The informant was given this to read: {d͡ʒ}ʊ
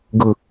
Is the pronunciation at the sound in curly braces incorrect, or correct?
incorrect